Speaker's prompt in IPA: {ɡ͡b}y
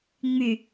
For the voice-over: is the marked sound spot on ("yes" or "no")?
no